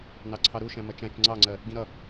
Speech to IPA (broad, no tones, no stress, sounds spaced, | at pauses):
n ɑ ǀʰ ɑ ɾ u ʃ æ̃ m ʌ t͡ʃ æ̃ t͡ʃ ŋ͡ǀ ɑ ŋ͡ǀ ɜ | ɡ ĩ ɾ ʌ